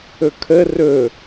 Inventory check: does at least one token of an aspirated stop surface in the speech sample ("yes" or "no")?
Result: yes